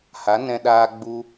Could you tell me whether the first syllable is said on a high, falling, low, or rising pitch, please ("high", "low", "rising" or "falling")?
rising